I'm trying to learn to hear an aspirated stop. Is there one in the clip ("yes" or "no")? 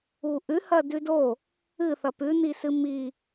no